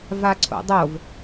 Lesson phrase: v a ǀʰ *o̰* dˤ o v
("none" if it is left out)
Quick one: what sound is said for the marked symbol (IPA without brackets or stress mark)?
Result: o̰